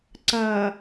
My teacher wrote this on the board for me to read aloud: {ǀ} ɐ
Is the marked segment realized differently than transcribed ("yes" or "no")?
no